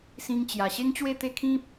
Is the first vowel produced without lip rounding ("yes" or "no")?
yes